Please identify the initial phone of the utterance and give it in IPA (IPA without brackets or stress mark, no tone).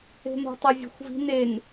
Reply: e̤